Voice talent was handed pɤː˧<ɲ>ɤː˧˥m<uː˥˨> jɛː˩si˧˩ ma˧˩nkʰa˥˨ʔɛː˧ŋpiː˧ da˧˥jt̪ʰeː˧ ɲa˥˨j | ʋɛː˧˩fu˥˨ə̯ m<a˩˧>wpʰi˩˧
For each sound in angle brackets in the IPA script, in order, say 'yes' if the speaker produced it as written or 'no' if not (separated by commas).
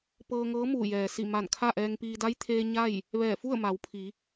no, no, yes